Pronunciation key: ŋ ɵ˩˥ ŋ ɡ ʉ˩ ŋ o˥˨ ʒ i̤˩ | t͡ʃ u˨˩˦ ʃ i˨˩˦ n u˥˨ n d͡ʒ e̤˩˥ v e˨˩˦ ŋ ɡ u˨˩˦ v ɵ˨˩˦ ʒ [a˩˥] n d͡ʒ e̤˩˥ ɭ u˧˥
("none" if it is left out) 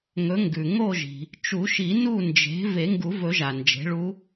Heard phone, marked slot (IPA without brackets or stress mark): a˩